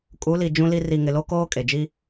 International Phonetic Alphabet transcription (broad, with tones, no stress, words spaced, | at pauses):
kʼu˨˦li˨ d͡ʒũ˦li˦ ri˨ŋɪ˨ lo˦ koː˦ kʼe˨d͡ʒi˦